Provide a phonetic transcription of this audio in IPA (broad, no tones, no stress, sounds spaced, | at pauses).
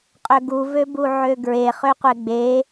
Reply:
qʼ ø ɡ u v ø b u ʕ ø ɡ ɹ e χ ø qʷ e ɡ͡b e